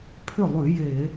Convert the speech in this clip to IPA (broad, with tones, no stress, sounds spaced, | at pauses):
pʰ ʏ˥˩ lˠ ʉ˧˩˧ j e˧˩˧